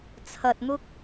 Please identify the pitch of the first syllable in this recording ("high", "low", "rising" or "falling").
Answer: low